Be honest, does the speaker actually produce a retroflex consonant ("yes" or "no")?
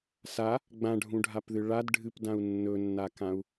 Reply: yes